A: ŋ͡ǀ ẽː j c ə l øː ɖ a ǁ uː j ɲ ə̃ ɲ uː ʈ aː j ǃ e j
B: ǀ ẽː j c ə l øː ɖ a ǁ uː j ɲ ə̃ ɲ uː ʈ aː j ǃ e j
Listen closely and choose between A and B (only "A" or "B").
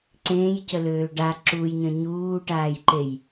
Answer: B